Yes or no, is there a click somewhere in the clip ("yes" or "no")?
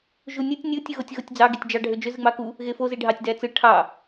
no